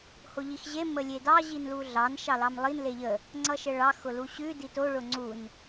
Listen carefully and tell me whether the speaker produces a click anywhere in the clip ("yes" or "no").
yes